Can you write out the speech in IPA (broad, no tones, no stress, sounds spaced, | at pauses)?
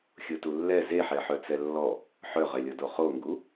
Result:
xʲ o t u lː ɛ z e ħ ɛ ħ œ t͡s ɛ lː ɔ | ħ œ ʁ ɛ lʲ ɔ d o χ o ŋ ɡ u